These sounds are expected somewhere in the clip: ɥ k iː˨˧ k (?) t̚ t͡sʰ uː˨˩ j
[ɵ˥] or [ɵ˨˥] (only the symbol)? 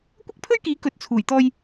ɵ˨˥